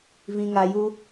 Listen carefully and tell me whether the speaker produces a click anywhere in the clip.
no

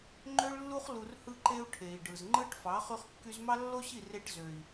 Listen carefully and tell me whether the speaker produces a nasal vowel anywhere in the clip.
no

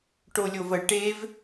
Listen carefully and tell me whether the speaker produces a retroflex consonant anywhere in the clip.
yes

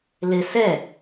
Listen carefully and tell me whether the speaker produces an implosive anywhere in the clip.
no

